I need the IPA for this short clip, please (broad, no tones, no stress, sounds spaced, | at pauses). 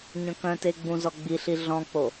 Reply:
ɲ œ̃ k œ̃ t e ɡ͡b ũ z ɔ ɡ͡b i ɬ i ɮ ɔ̃ k͡p o